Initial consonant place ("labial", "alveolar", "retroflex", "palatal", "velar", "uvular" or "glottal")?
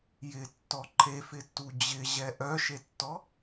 palatal